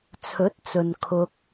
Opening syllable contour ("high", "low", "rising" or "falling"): rising